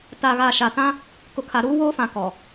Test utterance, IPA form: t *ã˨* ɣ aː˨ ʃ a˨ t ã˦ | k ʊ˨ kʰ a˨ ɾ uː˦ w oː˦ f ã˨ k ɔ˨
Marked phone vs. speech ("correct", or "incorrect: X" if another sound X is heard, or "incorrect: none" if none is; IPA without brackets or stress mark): incorrect: a˨